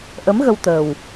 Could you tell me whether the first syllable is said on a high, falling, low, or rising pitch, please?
rising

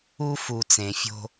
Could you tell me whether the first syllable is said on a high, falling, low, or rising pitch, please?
high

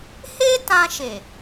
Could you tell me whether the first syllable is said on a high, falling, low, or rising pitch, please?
high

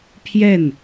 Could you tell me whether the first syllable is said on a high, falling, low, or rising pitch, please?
falling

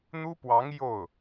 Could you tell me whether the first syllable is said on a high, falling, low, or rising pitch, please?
high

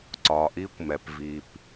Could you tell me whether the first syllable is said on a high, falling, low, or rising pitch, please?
low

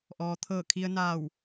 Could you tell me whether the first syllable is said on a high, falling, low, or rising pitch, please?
low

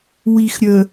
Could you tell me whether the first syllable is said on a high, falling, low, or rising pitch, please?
low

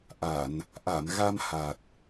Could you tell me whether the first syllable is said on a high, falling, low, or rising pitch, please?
low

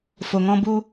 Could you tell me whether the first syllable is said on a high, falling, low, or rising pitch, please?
low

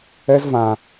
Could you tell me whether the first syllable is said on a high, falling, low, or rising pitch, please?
high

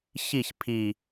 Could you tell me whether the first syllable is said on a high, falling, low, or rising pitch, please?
falling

